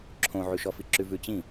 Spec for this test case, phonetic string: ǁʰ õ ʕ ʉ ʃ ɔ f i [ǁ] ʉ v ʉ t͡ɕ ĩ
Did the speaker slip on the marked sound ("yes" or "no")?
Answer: no